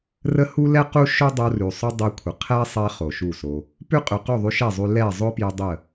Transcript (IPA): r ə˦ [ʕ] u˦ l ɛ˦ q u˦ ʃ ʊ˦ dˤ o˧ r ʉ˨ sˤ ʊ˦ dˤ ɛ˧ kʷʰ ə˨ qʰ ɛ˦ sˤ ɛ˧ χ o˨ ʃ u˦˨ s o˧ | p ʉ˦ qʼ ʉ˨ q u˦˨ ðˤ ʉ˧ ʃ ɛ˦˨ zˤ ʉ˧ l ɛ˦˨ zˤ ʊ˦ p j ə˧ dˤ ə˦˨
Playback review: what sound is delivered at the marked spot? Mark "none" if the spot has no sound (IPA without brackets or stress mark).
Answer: h